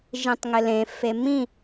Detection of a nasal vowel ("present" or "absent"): present